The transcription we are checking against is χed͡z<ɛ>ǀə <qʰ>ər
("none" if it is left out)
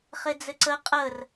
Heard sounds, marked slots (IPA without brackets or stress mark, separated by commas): ɘ, qʼ